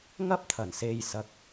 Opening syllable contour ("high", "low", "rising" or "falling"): high